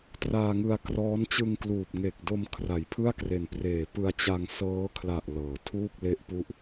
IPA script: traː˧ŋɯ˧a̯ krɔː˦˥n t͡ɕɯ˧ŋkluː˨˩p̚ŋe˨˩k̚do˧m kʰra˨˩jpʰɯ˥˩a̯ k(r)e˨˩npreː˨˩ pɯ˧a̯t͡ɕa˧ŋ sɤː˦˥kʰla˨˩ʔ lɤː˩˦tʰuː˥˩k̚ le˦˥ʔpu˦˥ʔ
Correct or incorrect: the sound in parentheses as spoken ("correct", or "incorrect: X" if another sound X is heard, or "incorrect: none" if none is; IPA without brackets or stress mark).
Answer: correct